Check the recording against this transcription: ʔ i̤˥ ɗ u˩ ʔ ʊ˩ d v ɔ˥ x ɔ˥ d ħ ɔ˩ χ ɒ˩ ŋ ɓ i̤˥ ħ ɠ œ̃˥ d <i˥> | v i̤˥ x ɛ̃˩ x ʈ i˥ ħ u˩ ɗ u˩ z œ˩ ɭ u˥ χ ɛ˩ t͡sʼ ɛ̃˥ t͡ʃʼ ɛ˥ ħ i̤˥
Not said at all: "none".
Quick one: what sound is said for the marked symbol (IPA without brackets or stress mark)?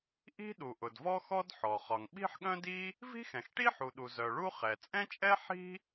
i˥